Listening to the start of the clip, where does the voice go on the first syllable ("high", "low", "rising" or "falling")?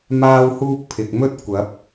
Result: high